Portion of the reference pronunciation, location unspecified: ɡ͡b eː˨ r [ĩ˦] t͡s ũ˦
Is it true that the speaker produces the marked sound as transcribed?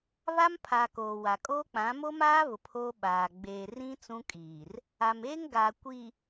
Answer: yes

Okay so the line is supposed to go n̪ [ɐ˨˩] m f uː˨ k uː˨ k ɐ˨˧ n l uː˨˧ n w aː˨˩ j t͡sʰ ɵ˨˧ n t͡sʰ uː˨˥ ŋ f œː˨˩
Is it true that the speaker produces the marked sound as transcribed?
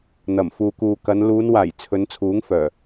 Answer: yes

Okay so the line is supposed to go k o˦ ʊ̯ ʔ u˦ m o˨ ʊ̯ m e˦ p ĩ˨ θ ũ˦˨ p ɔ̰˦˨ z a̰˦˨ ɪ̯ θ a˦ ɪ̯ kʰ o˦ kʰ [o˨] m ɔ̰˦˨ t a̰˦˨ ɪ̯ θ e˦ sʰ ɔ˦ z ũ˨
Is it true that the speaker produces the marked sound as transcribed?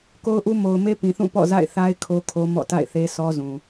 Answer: no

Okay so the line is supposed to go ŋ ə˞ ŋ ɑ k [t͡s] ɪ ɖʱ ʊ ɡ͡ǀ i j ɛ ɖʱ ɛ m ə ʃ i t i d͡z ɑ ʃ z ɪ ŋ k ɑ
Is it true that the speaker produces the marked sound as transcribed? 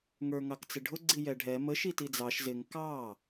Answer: yes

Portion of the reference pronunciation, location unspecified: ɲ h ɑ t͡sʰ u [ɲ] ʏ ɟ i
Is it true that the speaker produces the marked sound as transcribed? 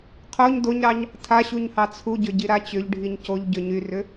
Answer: no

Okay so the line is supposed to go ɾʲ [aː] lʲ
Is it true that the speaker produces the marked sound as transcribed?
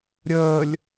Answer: no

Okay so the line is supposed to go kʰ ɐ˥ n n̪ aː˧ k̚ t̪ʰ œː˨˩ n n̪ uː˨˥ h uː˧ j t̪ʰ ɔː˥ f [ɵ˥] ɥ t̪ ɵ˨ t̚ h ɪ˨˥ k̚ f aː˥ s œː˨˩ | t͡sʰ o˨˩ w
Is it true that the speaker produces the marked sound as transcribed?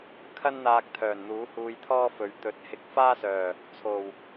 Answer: no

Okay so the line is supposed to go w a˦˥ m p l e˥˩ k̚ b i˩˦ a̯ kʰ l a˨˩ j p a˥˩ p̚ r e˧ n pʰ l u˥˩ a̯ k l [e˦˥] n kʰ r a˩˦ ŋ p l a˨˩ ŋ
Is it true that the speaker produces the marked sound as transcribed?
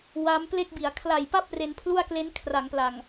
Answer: yes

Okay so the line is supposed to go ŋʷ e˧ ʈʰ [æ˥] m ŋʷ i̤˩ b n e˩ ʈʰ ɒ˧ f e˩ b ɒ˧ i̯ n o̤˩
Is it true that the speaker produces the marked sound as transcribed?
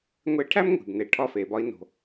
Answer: yes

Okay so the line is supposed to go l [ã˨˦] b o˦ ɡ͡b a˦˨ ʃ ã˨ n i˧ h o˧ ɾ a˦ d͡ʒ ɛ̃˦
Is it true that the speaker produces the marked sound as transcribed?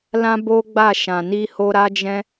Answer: no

